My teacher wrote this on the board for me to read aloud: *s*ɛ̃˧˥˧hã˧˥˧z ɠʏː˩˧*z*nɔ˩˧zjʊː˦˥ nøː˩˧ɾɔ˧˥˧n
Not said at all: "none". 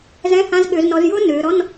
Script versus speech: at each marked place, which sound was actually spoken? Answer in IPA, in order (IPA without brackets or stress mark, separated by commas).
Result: z, z